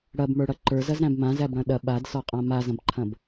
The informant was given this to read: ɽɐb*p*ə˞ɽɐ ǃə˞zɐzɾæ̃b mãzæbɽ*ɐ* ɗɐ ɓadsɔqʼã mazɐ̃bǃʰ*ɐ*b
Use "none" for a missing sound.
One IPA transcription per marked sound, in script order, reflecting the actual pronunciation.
m, ɐ̃, ɐ̃

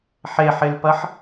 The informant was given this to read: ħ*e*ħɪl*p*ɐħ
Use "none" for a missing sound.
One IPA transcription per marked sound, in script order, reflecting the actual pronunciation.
e, p

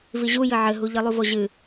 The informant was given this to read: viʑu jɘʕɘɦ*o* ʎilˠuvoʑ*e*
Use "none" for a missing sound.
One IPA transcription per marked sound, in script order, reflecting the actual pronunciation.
u, ɨ

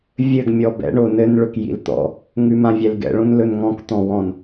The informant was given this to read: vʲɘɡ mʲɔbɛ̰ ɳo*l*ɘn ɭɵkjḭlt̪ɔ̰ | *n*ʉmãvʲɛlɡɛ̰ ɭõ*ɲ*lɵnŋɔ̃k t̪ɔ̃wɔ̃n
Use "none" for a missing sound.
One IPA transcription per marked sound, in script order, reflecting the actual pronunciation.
n, ŋ, n

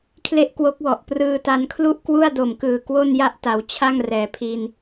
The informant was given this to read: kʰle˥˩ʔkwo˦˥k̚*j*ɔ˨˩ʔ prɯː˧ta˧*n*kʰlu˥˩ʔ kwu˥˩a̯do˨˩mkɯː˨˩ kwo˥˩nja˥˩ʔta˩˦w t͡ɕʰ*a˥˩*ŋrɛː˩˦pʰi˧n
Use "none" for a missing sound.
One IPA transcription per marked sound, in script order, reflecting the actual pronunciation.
w, n, a˥˩

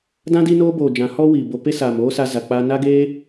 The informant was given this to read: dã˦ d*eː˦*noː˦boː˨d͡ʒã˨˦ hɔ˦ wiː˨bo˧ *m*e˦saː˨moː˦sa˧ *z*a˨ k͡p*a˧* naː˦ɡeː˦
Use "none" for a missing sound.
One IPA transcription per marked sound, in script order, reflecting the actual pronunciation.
iː˦, p, z, a˧

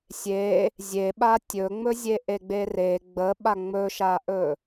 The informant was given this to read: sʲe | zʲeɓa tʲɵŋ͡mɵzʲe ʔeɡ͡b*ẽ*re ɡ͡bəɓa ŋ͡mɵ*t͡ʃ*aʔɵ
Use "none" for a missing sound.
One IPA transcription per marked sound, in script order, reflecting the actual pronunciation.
e, ʃ

